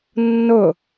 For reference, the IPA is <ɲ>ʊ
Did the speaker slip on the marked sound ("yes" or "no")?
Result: yes